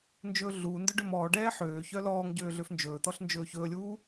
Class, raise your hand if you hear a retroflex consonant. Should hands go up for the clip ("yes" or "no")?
yes